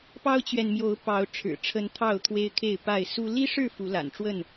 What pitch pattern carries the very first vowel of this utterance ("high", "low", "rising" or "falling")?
high